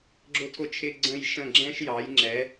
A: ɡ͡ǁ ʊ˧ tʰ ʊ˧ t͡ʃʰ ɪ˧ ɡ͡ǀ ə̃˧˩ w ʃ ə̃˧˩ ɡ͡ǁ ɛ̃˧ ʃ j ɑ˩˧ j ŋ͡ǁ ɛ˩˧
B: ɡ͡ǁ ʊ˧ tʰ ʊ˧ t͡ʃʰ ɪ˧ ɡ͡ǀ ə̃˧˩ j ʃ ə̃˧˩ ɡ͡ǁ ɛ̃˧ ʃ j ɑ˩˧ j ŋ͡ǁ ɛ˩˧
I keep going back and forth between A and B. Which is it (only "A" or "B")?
B